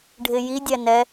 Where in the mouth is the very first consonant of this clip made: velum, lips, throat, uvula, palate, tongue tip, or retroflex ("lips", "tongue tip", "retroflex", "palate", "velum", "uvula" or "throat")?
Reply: retroflex